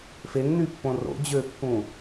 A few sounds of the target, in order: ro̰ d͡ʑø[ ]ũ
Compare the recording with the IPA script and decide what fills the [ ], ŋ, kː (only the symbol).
kː